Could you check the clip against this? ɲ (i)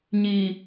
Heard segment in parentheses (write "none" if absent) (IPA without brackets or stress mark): i